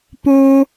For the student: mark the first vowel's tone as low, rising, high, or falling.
high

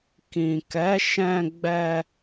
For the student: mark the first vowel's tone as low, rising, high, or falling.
low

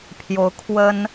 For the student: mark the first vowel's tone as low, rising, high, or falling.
rising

